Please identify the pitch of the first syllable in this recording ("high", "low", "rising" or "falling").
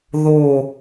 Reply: falling